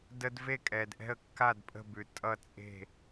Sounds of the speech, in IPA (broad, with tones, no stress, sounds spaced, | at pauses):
d ə˦ d v e˥˨ kʼ ɛ˨ d ʔ ɛ̤˥˨ ə̯ kː a˥˨ d pʼ ə̤˥˨ b ʉ˨ tʼ ʌ˥˨ t͡sʼ e̤˥˨